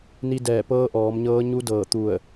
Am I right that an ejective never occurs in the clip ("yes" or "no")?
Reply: yes